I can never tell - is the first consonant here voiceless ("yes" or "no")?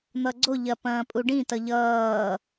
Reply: no